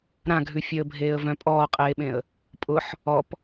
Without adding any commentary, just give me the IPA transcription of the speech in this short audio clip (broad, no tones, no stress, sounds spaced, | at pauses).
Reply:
ɾ ã ɡʱ ʉ fʲ œ ə̯ bʱ eː ə̯ v œ̃ pʼ ɔː qʼ eː ɓ ẽ ə̯ | pʼ ʊ ħ | ɔ p